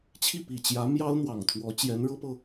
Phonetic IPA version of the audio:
t͡ɕʰ i˥˩ p i˨˩ t͡ɕ j ä˧˥ m j ɑ˥ ʊ̯ n̪ w ɑ˨˩ ŋ t̪ʰ w ɔ˧˥ t͡ɕ j ɛ˧˥ n ɻ ɤ˥ p ɤ˨

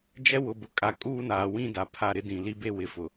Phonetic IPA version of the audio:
d͡ʒ ɛ˦ w ʊ˨ b ʊ˨ kʼ a˨ kʼ uː˦ n aː˨ w ĩ˦ d a˨ pʰ a˦˨ ɾ ɪ˦ d ĩ˨ l i˦ b e˦ w ɪ˨ f ʊ˨

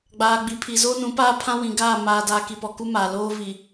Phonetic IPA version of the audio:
ɡ͡b aː˨ ɡ͡b i˨ pʰ i˨ z oː˦ n ũ˨˦ p aː˦ pʰ ã˦ w ĩ˨ ɡ aː˦˨ m aː˨ d a˨ k i˨ p ɔ˨ k u˦ m aː˨ l oː˦ v i˨

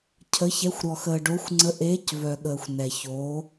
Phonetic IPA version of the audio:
cʰ ə˨˦ ç ɛ˨˦ xʷ ɾ ɔ˨ x əː˨ ɖ o˨˦ xʷ ŋ͡ǀ ə˨˦ ʔ eː˨˦ c v œ˨ ɠ əː˨ xʷ n ɛ˨ ç o˨˦

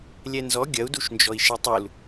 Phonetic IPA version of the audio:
lʲ ɛ n z ɔ ɡʲ ɐ u̯ d u ʃ n d͡ʒ ɔ i̯ ʃ ɛ tˤ u l

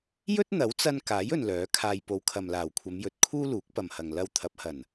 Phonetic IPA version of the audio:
j ɵ˥ t̚ n̪ ɐ˨˥ w t͡s ɐ˧ n k aː˨˥ j ɵ˨ n l œː˨˥ kʰ aː˧ j p o˨˧ w kʰ ɐ˨ m l aː˨˩ w kʷʰ ɐ˨˧ m j ɵ˨˥ t̚ kʰ uː˥ l uː˨˥ k̚ p ɐ˨ m h ɐ˨ ŋ l ɐ˧ w t̪ʰ ɐ˨˥ p̚ h ɐ˨˩ n

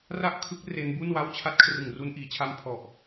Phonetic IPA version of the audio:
r a˥˩ ʔ kʰ ɯ˦˥ k̚ r e˦˥ n b u˥˩ n w a˥˩ w t͡ɕʰ a˥˩ t̚ kʰ r ɯ˨˩ ŋ r u˧ n ʔ iː˩˦ t͡ɕʰ a˧ m pʰ ɔ˨˩ ʔ

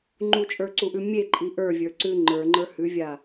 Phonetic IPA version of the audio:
ŋ͡ǃ u t͡ʃʼ ə˞ ǀ u ʔ ʉ mʲ e ǃʼ i ʔ ə˞ vʲ ə˞ ǀ ʉ ŋ͡ǃ ə˞ ŋ͡ǃ ə˞ h ʉ vʲ a

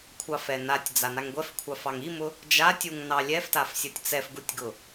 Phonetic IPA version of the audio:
kʷʰ ɑ f ɛ n a tʲ d͡z a n a ŋ ɡʷ ɛ f kʷʰ ɑ f ɑ ŋ i m ʊ | d͡ʒ a tʲ u ŋ n ɑ lʲ ɛ f t a f sʲ ɤ tʲ t͡s ɛ f ɡ u tʲ ɡ ʊ

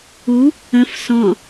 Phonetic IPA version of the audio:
u | ə̃ f s ɔ̃

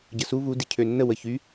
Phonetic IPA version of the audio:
ɟ ə s u β u d i cʰ ø nː ə w ə ç y

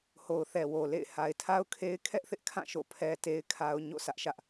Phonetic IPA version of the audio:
h o˨ ʊ̯ θ ɛ˨ w o˨ l ḛ˦˨ ɪ̯ h a˨ ɪ̯ tʰ a˦ ʊ̯ kʰ e˦ ɪ̯ kʰ ɛ˦ ʔ θ ɪ˦ ʔ kʰ ã˦˨ ʃ o̰˦˨ pʰ ɛ˦ t e˦ ɪ̯ kʰ a˦ ʊ̯ ɲ o̰˦˨ sʰ ä˦ ʔ ʃ ä˦ ʔ

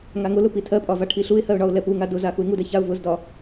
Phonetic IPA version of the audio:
ŋ a ŋ ʊ l ʊ p i tʰ ɜ pʼ ɒ v a ʈʰ i ɬ u ɪ̯ h ɜ ʊ̯ ɳ ɒ ʊ̯ l ɛ p u ŋ a d ʊ z a x u ɪ̯ ŋ u d ɛ ç a ʊ̯ v ʊ z d ɒ

